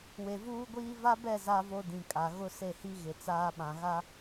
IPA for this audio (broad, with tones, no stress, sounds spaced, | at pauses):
w e˨ v uː˦ ɡʷ iː˦ v a˦ b ɛ˦˨ z a˦ v o˦ d ĩ˨ kʼ a˨ ɣ ʊ˦ s e˦˨ h i˦ ɣ ɪ˨ t͡s aː˦ ɓ ã˨ ɣ a˦